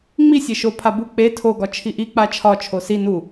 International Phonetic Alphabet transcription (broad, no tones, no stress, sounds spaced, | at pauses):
ŋ͡m i sʲ e ʃ o pʰ a b u k͡p e tʰ o ɡ ɒ t͡ʃʰ i ʔ i k͡p a t͡ʃʰ ɒ t͡ʃʰ o s i n u